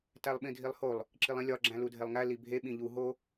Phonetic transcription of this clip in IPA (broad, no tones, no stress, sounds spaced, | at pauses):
t æ lˠ ɓ ĩ dʱ i lˠ h o lˠ | ǁ i lˠ ĩ lʲ ɒ ɡ͡ǁ æ̃ l u dʱ e lˠ ŋ æ l i bʱ e ɓ ĩ ʎ u ɦ o